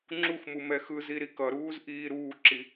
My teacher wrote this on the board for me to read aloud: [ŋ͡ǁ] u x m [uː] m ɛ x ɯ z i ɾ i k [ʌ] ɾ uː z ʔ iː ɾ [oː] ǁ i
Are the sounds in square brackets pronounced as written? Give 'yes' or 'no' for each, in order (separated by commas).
yes, no, yes, no